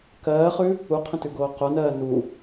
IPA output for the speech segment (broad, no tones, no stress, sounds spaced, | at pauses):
k ɜː χ ʉ | u qʰ ə̃ t ʉ ɡ oː q o n ɜː n u